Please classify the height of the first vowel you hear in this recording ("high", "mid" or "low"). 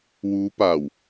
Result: high